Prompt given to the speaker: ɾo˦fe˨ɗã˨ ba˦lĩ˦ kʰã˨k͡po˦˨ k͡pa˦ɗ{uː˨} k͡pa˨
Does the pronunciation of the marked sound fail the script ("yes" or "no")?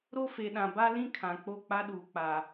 no